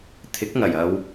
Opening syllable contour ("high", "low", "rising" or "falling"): rising